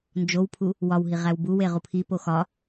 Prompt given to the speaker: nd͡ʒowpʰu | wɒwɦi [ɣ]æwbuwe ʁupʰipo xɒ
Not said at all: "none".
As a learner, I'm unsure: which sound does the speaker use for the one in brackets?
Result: ʁ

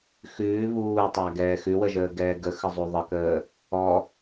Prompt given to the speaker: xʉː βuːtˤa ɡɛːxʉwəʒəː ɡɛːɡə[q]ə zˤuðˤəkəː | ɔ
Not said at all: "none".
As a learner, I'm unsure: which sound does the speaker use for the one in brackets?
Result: x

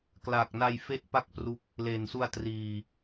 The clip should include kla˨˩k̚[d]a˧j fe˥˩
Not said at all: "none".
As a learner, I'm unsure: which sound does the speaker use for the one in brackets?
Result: n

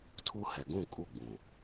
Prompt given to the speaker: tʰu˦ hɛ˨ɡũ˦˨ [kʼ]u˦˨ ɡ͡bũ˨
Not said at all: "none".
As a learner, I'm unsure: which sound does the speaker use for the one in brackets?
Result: kʼ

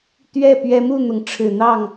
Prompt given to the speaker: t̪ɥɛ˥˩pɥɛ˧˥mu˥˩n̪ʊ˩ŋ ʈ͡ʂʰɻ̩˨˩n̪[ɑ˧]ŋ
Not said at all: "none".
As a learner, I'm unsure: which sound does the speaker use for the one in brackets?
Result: ɑ˥˩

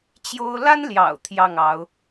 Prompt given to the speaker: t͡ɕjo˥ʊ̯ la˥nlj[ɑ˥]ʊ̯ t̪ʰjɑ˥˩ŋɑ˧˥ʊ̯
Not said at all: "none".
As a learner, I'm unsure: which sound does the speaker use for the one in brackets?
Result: ɑ̰˨˩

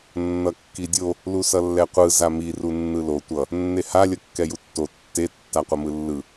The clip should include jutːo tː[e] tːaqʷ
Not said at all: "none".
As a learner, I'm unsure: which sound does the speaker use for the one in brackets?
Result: e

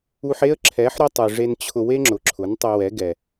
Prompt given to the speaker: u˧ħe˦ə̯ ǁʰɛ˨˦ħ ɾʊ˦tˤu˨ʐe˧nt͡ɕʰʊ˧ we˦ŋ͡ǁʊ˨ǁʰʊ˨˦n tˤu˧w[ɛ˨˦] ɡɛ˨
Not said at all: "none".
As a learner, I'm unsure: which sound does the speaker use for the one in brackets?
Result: ɛ˨˦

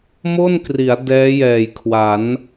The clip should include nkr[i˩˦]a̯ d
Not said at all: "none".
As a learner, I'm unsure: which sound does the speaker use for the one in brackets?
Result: i˩˦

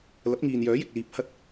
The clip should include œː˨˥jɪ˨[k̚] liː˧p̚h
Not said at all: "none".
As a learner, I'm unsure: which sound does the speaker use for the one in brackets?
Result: k̚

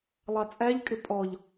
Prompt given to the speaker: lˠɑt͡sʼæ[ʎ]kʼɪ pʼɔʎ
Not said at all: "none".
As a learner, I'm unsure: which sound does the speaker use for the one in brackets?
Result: ʎ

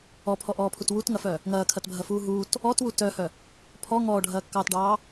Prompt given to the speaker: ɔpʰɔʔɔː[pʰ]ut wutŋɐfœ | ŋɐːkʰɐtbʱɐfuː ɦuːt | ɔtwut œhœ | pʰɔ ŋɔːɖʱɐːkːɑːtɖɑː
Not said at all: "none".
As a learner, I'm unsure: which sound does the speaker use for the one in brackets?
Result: pʰ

